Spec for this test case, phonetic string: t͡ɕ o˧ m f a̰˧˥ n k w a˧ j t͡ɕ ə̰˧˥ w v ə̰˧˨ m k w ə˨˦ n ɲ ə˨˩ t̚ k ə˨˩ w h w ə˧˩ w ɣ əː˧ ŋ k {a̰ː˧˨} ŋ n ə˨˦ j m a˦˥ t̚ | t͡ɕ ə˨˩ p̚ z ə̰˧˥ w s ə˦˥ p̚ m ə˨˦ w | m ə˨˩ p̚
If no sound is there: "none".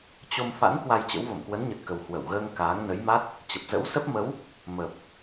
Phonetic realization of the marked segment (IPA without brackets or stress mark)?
aː˨˦